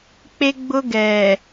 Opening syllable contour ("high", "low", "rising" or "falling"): high